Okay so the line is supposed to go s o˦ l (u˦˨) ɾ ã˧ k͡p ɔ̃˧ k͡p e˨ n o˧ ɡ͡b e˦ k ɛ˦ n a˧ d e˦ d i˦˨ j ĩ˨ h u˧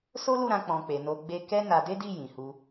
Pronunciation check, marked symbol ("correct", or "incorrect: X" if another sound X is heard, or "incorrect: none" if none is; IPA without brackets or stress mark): correct